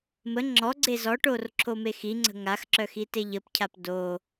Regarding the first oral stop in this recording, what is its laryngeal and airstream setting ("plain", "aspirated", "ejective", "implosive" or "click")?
click